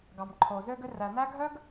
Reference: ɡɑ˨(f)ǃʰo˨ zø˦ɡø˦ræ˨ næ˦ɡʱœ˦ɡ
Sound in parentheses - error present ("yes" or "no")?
yes